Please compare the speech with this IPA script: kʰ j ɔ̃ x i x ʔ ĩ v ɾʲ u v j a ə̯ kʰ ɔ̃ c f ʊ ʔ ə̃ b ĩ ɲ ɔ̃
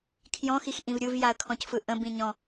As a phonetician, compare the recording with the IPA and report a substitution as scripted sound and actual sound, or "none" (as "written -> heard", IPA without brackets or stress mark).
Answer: ʊ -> ɯ